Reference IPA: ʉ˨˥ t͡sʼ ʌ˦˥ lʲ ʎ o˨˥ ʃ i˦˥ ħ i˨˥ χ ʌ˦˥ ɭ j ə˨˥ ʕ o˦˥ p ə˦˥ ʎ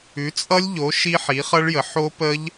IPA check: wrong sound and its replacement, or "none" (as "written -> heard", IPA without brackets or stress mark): ʕ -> ħ